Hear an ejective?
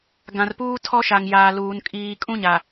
yes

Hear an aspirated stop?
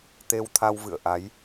yes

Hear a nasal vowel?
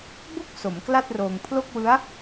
no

